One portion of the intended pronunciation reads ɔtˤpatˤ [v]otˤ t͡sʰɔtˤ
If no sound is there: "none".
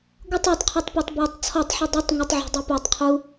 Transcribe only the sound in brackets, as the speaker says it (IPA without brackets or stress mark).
b